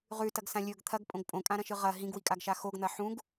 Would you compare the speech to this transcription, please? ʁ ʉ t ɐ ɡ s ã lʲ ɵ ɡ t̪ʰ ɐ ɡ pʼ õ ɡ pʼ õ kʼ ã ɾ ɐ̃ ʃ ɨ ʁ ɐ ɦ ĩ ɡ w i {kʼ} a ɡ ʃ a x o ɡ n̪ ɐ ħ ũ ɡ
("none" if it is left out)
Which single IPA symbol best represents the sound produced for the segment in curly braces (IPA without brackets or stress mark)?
kʼ